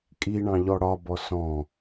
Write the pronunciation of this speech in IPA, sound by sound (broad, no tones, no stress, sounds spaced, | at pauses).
kʼ i ɳ ɑ̃ ʎ ɔ ɽ ɒ b ɔ s ɔ̃